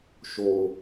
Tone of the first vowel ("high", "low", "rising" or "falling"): low